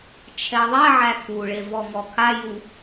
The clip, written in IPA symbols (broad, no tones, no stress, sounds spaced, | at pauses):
t͡ʃʰ ɛ ðˤ ɛ ʕ æ k u ɭ e v ɔ ŋ ɔ kʰ a j u